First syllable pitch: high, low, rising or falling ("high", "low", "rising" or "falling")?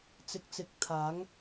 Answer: low